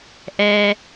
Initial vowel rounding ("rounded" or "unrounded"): unrounded